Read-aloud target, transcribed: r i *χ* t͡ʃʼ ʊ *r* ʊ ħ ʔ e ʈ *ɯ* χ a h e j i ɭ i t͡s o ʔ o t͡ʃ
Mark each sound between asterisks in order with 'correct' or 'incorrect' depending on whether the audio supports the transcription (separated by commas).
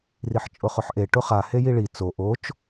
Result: incorrect, incorrect, incorrect